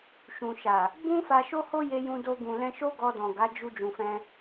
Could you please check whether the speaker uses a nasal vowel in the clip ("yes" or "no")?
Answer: yes